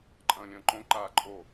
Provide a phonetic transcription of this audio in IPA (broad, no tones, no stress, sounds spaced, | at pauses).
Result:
ǃʼ ɐ̃ː lʲ ɐ̃ː ǃ õ ǃ aː ǃʼ o